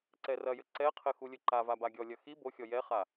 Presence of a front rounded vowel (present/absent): absent